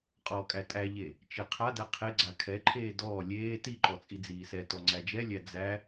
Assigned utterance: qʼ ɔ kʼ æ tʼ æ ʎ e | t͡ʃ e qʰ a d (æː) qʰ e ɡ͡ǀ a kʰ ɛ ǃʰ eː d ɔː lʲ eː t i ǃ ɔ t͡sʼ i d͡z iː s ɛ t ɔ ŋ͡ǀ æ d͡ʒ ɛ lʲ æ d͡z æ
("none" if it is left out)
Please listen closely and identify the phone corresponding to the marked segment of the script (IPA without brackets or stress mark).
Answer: æ